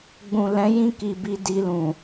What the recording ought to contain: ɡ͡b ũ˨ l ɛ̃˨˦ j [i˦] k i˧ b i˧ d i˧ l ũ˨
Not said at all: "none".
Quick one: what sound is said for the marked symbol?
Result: ĩ˦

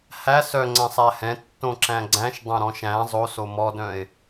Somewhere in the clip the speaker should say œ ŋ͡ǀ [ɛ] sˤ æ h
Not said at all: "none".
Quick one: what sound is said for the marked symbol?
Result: ɛ̃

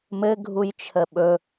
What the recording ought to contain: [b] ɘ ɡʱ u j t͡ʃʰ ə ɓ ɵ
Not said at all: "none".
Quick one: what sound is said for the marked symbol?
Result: m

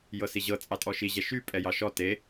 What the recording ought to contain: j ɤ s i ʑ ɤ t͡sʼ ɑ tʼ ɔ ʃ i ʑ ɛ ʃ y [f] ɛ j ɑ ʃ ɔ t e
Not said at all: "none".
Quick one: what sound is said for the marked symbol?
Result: pʼ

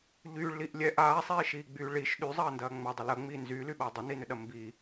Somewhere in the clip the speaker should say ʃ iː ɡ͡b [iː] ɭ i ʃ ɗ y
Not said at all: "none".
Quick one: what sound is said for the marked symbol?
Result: yː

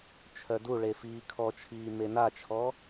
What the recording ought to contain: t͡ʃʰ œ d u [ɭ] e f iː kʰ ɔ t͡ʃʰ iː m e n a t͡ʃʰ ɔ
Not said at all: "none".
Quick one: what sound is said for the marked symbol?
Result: ɭ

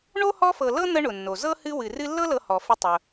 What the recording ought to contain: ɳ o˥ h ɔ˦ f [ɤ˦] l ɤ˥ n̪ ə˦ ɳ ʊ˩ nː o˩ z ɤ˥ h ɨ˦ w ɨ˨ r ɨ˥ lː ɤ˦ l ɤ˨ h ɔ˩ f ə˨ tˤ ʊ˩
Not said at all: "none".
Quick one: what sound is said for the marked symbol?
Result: ɤ˨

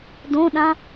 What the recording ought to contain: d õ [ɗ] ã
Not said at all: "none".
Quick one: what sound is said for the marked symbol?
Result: ɗ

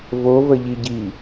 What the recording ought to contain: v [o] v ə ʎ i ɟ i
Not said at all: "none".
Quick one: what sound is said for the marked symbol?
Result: o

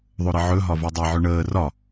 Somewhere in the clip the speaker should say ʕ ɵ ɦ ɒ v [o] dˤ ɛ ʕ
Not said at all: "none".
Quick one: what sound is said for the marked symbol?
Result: o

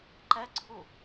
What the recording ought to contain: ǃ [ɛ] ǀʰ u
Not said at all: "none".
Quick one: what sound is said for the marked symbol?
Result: ɛ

